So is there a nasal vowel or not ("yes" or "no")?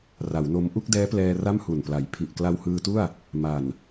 no